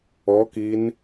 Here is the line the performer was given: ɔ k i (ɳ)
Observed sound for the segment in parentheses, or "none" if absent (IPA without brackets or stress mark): n